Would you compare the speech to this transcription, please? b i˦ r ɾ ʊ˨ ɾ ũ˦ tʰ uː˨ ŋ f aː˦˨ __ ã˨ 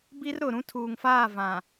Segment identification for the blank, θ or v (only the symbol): v